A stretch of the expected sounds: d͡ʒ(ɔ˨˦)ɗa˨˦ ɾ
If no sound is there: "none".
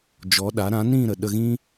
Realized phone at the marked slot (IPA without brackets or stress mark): ɔ˨˦